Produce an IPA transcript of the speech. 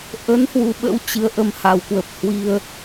ʔ ə˨˦ n h w u˨˦ ɓ ə̰˧˥ w t͡ɕ ɨ˨˦ ə̯ ʔ ə˧ m h a˧˩ w k w ə˨˩ p̚ h w i˧ ə̯

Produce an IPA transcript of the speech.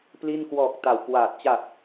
p l i˥˩ n k w ɔː˨˩ k̚ t a˨˩ w k w aː˨˩ t̚ t͡ɕ a˨˩ t̚

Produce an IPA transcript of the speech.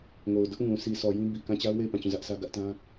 ŋ o˨ ʊ̯ d ʊ˦ ʔ ŋ ũ˨ s i˨ sʰ ɔ˨ j ĩ˦ b i˨ k ã˦˨ t͡ɕ a˦ ʊ̯ w e˦˨ ɪ̯ p ã˦˨ t͡ɕ ũ˦˨ z ä˦ ʔ sʰ ä˦ ɡ ä˦ ʔ t ã˦

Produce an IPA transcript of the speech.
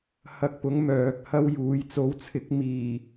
h ɐ˧ k̚ p ʊ˨˥ ŋ m œː˨ k̚ h ɐ˥ w j uː˨˧ j t͡s o˨˥ w t͡sʰ ɪ˨˥ k̚ m iː˨˩

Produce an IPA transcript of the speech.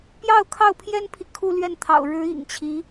p j ɑ˥˧ ʊ̯ kʰ ɑ˥˩ ʊ̯ pʰ j ɛ˥ n pʰ i˨ kʰ u˥˧ l ɥ ɛ˥˩ n t̪ʰ ɑ̰˨˩ ʊ̯ ɻ ɻ̩˧˥ ḭ˨˩ ŋ t͡ɕʰ i˧˥

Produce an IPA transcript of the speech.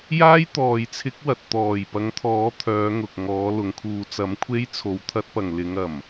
j aː˥ j t̪ ɔː˨ j t͡sʰ ɪ˨˥ k̚ w ɐ˨ t̚ t̪ ɔː˨˩ j p ɐ˨˥ ŋ t̪ʰ ɔː˨˥ t̪ʰ œː˨˧ ŋ ʊ˨ k̚ ŋ ɔː˨˥ l ʊ˨˥ ŋ kʰ uː˧ t͡s ɐ˨˥ m kʷʰ e˥ j t͡sʰ o˨ w t̪ʰ ɐ˥ t̚ p ɐ˨ ŋ l ɪ˨˧ ŋ ɐ˨˩ m

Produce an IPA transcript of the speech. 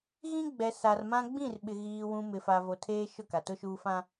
ɣ ĩ˦ ɡ͡b ɛ˨ s a˨ r m ã˦ ɡ͡b ĩ˦˨ r ɓ ɪ˨ ɣ iː˨ w ũ˨ m ɪ˨ f a˨ v o˨ tʰ eː˦ ʃ ʊ˦˨ k a˨ t ʊ˦ ʃ uː˦ f ã˦

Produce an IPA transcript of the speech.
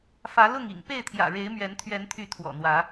f ä˨˦ l ʊ˥˨ ŋ ḭ˨˩ ŋ p e˥˨ ɪ̯ t̪ʰ j ä̰˨˩ ɻ e˨˦ ɪ̯ m ɥ ɛ˨˦ n t̪ʰ ɥ ɛ˨˦ n t̪ʰ y˨˦ t̪ʰ w ɔ̰˨˩ n̪ w ä˨˦

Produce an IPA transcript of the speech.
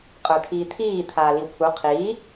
qʼ ə˞ t̪ʰ iː t̪ʰ iː t̪ʰ aː l i w pʰ u qʰ iː

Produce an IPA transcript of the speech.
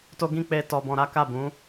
t o˦ ɡ ĩ˦ k͡p e˦ t ɔ˧ b ɔ̃˧ ɾ a˦ k a˦˨ b ũ˨˦

